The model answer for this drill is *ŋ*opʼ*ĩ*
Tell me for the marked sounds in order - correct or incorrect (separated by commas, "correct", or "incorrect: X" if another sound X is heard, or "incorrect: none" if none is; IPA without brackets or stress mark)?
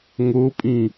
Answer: correct, correct